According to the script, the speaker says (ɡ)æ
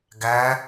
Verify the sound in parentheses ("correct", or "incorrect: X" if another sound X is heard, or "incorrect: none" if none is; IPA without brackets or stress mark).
correct